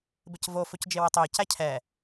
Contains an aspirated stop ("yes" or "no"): yes